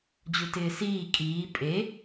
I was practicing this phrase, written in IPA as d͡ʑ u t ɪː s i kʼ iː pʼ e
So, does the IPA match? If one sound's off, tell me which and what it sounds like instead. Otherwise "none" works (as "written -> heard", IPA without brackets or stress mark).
i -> iː